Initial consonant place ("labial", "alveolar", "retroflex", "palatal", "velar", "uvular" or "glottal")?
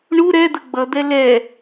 retroflex